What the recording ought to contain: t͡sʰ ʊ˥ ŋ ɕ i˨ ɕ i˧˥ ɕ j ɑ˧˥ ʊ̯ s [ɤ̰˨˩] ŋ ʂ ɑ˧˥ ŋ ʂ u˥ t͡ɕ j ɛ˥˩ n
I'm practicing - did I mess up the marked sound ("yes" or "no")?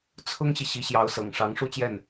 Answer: no